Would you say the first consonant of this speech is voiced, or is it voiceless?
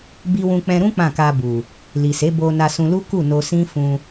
voiced